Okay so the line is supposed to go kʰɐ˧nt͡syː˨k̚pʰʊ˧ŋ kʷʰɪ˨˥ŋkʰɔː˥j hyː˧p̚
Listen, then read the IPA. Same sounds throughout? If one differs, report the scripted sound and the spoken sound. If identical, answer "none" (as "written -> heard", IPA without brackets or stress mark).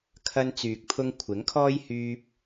none